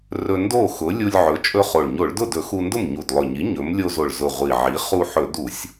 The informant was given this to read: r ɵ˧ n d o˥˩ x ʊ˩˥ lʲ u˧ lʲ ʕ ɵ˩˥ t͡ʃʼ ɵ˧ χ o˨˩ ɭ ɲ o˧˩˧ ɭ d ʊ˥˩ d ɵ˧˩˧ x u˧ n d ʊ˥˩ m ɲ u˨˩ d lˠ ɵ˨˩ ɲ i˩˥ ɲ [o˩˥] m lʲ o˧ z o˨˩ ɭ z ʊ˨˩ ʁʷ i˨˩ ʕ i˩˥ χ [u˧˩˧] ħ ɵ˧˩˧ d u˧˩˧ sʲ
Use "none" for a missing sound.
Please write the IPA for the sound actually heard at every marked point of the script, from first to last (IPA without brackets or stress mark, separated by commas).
ɵ˩˥, u˧